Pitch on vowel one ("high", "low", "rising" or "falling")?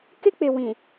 high